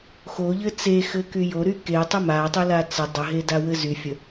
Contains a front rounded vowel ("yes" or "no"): yes